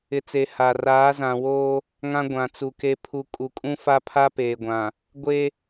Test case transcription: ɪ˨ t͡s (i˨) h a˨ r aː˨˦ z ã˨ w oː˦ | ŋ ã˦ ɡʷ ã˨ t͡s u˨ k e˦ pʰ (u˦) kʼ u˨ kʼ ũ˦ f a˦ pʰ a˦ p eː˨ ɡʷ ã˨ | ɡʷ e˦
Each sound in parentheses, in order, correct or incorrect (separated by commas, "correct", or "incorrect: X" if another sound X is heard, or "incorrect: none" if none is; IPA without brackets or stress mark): incorrect: e˨, correct